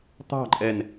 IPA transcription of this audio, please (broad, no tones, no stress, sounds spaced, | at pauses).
t̪ ɑ̤ ǃʼ ɛ n